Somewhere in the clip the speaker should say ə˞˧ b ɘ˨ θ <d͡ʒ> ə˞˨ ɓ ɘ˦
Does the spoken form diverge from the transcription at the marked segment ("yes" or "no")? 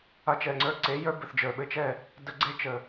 no